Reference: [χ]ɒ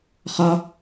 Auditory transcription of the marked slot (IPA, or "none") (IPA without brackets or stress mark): χ